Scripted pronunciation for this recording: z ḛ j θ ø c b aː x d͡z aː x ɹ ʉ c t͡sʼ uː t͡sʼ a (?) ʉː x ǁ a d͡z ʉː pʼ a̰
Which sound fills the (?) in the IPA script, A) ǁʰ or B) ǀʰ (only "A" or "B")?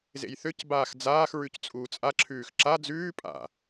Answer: A